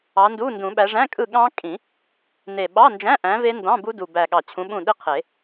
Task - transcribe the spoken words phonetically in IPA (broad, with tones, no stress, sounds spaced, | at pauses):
ɑ˨˦ n d u˧˥˧ n d ũ˨˩˦ ɓ æ˨˦ ʐ æ̃˧˥˧ kʼ ɯ˦˨ ɠ ɑ̃˦˥ kʼ ĩ˨˩˦ | n e˨˩ ɓ ɑ˧˥˧ n d͡ʒ æ̃˧˥˧ ʔ æ̃˨˦ v e˦˥ n d ɑ̃˧˥˧ b u˦˥ d u˨˩ b æ˨˩ ɠ ɑ˨˩ t͡ɕʰ ũ˨˦ ɓ ũ˦˨ ɗ i˦˥ qʰ e˨˩˦